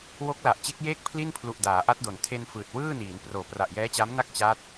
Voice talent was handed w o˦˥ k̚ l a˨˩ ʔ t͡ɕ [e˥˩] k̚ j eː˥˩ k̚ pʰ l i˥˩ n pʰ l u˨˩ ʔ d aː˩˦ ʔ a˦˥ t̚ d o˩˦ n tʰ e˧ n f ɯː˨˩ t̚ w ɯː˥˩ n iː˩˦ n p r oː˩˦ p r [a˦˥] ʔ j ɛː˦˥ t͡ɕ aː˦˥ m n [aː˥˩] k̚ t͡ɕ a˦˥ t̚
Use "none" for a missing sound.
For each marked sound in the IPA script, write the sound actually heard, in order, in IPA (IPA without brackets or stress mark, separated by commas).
e˦˥, a˨˩, a˥˩